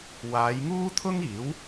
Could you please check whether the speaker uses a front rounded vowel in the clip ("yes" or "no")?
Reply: no